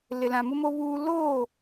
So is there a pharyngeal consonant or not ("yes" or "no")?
no